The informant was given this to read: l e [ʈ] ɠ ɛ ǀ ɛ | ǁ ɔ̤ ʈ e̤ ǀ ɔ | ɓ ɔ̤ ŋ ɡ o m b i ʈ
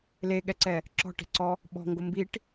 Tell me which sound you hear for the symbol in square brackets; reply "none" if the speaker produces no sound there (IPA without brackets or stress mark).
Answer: none